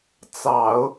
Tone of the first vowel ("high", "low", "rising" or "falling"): low